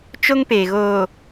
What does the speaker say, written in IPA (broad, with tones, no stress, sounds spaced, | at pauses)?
t͡ʃ o˦ ŋ p eː˨ ɣ oː˨